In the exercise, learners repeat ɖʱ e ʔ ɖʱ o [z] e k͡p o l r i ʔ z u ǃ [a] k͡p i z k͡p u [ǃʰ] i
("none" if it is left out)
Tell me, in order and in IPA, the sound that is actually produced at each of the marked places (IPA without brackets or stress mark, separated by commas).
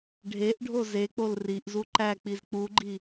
z, æ, ɡ͡ǃ